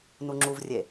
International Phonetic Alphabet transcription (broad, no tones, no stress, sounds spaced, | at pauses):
n u ŋ͡ǁ u v rʲ e